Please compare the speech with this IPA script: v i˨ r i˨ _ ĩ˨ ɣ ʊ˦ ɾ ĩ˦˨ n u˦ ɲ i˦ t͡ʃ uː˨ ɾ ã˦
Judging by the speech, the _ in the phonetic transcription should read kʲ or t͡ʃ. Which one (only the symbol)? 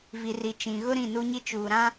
t͡ʃ